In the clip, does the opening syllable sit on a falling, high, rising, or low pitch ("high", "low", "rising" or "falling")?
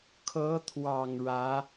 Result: rising